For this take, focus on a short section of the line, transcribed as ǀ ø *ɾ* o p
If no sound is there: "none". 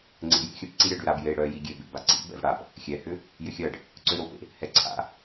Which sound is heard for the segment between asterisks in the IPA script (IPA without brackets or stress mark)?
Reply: ɾ